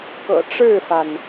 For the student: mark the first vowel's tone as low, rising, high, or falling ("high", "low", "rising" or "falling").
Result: low